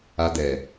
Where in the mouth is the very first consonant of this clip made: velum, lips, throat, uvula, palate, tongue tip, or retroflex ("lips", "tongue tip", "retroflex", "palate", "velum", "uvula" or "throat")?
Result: tongue tip